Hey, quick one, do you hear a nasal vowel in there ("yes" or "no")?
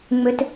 no